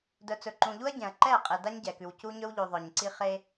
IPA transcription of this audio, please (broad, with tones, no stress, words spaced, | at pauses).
dœ˨t͡sɵ˨ǃũ˨ʎu˦ɐ̯ ɟɛ̃˨ɐ̯ ǃɛ˦˨ qʼe˨da˦ɲɟɛ˨kʉ˨w cu˦ɲɵ˦wʎʉ˨ ðˤœ˨ɲǀi˦ χe˦